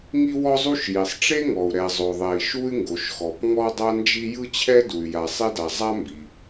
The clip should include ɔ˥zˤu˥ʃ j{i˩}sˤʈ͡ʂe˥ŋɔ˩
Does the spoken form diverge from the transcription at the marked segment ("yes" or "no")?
no